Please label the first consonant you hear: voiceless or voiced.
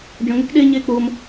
voiced